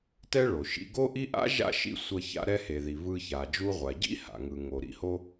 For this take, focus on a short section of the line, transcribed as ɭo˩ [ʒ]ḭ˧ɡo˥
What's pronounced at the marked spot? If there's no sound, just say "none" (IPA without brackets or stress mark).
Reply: ʃ